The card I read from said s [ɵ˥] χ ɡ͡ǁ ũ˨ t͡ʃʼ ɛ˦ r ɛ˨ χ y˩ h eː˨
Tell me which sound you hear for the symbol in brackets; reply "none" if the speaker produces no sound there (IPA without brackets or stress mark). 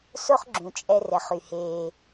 o˥